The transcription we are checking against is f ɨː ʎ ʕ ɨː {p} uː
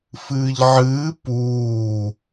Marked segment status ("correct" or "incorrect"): correct